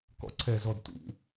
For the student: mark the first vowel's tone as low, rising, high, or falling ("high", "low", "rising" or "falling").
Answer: falling